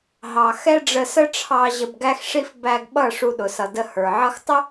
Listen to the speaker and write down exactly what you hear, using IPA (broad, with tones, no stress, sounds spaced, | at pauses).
ɦ ɑ˨ x ɛ˦ ɖ͡ʐ ə˧ s ə˦ ʈ͡ʂʰ ɑ˧ ʑ ə˧ b ɡ æ˦ x ʂ i˦ f b æ˧ ɡ ɓ ʌ˦˨ ʂ u˧ ɗ ʊ˨ s ʌ˨ d ə˧ h ə˞˨ ʕ ʌ˧ x tˤ ə˦